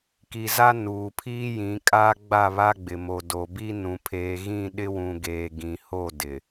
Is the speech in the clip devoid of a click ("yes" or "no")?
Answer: yes